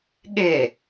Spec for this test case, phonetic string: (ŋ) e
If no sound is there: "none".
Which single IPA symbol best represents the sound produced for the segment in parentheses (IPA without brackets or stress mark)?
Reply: ɠ